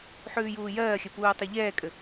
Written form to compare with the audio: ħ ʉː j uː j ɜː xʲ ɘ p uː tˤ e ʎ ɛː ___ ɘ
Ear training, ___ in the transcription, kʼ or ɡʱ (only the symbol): kʼ